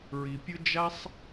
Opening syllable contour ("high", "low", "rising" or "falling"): low